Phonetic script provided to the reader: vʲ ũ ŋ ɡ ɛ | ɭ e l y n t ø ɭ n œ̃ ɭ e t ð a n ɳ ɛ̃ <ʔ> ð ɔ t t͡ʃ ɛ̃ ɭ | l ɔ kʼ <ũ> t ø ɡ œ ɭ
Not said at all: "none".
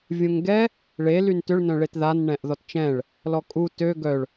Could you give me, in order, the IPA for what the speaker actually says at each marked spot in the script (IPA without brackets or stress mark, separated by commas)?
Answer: ʔ, u